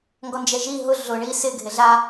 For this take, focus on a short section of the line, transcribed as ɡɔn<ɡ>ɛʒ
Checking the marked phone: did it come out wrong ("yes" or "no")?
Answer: yes